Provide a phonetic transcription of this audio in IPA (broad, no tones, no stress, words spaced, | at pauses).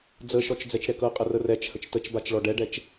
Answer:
d͡zəʃɔt͡ʃ d͡zɛt͡ʃɾɛkɤqʼə rərɛt͡ʃhət͡ʃ tət͡ʃbat͡ʃ ɭɔɖɛɖɛt͡ʃ